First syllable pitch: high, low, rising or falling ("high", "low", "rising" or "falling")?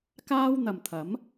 high